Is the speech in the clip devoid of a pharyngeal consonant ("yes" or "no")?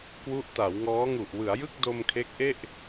yes